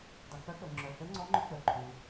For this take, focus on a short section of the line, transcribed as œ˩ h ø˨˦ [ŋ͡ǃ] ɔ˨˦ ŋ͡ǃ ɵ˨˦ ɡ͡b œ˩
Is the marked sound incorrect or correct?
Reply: incorrect